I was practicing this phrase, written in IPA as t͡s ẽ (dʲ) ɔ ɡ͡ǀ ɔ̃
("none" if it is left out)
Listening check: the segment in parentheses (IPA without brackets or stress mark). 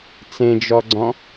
d͡ʒ